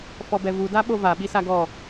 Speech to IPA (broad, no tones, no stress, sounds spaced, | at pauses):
f ɔ b ɛ v u d a ɓ o v a ɓ i s a ɡ ɔ